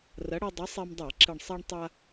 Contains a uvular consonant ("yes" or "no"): no